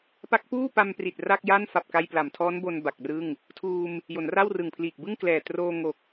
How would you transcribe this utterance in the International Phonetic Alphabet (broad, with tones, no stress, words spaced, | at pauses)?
pa˦˥k̚puː˥˩pa˧mpri˨˩t̚ ra˥˩k̚ja˥˩nfa˨˩p̚ ka˧j pla˩˦mtʰɔː˦˥nbo˧n ba˨˩k̚rɯ˥˩ŋ | tʰuː˧m | jo˩˦nra˥˩wrɯ˨˩ŋpʰliː˨˩k̚ bɯ˥˩ŋklɛː˨˩troː˧ ŋo˨˩k̚